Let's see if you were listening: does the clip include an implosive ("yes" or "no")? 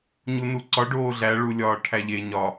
no